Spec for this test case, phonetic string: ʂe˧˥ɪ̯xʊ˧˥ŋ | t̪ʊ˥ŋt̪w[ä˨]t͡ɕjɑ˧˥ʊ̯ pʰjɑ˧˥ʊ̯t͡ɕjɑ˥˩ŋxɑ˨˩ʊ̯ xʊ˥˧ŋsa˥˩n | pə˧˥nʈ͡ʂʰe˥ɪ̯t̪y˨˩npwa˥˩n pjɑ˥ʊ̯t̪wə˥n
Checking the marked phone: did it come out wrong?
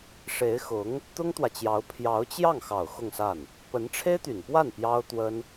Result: no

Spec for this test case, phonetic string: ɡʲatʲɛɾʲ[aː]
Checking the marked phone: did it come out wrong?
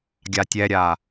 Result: no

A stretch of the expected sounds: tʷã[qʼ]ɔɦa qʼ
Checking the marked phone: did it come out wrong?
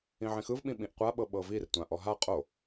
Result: yes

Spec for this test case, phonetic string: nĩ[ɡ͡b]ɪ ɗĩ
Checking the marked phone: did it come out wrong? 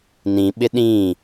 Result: yes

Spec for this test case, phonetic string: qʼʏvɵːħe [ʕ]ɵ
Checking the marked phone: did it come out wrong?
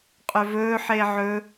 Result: no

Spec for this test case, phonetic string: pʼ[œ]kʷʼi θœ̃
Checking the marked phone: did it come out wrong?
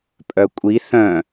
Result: no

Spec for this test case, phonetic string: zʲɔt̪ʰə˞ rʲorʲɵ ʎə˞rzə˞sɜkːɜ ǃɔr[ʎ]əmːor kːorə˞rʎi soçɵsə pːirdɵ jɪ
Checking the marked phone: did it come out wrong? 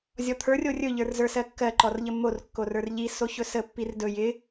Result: no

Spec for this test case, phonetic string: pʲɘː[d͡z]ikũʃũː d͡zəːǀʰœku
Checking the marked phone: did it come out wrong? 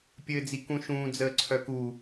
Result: no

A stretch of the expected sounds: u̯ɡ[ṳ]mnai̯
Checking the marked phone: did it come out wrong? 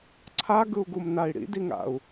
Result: yes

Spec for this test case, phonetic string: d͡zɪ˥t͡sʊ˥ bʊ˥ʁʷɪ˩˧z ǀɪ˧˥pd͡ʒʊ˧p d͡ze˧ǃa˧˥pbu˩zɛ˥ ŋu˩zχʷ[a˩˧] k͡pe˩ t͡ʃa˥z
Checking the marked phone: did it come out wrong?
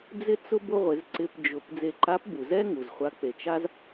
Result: yes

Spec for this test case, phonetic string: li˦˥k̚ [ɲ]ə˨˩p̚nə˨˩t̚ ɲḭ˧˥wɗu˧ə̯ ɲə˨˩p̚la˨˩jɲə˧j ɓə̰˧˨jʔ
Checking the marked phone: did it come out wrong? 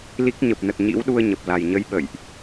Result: no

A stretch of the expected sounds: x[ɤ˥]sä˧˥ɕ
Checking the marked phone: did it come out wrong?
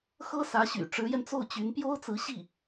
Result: no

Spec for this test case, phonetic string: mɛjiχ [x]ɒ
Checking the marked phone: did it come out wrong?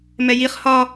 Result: yes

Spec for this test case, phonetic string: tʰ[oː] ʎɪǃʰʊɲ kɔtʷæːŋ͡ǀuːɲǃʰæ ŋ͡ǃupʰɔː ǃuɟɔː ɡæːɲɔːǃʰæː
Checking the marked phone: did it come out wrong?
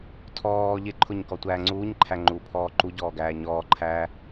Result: yes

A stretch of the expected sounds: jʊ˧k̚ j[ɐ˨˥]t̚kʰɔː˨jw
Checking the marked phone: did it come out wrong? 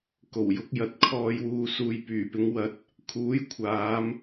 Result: no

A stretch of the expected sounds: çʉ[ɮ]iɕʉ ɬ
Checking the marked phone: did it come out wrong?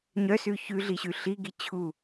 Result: no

